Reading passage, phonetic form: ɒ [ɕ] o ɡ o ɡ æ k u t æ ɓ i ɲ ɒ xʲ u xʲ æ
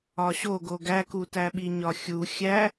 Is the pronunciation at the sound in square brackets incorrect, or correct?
correct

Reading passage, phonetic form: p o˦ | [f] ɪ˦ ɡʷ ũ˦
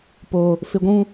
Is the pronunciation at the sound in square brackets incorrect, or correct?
correct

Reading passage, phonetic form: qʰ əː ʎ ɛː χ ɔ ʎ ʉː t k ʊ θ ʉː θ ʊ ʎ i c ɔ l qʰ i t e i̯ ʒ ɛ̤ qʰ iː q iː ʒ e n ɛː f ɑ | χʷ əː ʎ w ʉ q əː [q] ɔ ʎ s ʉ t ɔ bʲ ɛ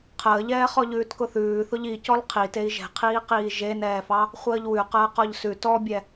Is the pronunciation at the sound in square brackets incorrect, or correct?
correct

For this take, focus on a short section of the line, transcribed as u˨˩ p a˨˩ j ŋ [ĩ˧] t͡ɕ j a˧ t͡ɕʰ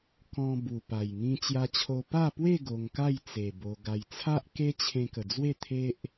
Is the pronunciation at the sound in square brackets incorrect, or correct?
correct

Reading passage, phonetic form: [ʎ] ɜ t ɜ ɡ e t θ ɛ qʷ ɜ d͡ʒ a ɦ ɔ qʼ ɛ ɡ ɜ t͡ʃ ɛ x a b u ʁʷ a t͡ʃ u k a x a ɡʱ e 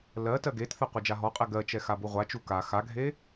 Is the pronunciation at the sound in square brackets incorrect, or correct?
incorrect: l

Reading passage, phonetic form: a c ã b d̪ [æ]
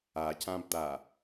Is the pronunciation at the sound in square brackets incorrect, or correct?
incorrect: a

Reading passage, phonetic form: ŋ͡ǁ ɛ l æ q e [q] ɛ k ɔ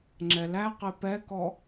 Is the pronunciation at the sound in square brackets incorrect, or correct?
incorrect: p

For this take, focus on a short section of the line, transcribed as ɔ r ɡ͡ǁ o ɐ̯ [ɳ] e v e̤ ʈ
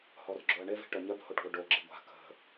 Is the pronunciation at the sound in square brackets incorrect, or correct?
correct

